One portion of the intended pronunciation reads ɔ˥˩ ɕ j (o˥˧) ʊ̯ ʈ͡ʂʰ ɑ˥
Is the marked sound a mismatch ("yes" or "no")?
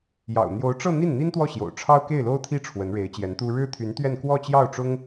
yes